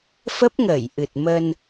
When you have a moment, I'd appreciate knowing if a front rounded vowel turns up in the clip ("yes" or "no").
no